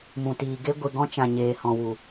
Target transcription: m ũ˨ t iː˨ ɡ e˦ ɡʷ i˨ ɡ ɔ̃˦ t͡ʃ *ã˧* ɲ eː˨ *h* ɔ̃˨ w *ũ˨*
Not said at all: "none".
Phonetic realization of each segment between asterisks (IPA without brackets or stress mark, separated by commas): ã˨, h, u˨